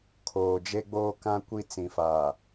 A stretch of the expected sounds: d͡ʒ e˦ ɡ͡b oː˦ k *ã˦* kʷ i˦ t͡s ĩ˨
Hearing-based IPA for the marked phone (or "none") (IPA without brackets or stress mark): ã˦